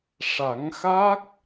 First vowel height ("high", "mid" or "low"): low